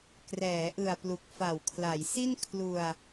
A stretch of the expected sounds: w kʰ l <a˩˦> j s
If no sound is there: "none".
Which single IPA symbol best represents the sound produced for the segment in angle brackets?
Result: a˩˦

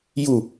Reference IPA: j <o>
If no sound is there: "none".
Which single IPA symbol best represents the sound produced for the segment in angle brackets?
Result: u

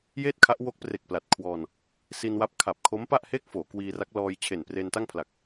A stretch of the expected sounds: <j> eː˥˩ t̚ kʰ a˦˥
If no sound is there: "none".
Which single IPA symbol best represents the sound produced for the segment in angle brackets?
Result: j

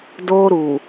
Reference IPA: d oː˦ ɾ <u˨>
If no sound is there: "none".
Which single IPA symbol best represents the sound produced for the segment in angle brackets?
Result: u˨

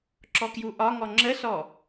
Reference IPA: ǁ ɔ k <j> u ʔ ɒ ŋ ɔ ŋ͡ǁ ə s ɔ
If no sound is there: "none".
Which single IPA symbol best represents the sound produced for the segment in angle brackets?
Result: j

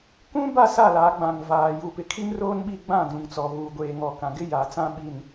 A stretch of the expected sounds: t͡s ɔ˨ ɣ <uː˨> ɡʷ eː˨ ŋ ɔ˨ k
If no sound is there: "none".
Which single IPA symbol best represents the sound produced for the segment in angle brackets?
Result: uː˨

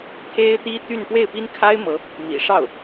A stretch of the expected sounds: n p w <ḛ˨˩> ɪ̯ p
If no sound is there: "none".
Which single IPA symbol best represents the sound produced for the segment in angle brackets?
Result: e˥˩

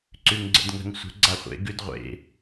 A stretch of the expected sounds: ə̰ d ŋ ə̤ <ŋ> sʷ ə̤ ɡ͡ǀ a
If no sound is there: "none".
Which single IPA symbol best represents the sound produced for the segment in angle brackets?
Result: ŋ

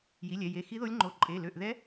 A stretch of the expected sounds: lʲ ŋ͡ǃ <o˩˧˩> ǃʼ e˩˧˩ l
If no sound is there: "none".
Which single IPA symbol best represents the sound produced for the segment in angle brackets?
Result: o˩˧˩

